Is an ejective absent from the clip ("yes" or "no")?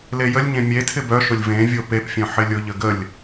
yes